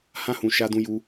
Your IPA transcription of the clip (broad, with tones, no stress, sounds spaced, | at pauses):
h ã˦ h ũ˧ ʃ a˧ d ũ˧ j u˧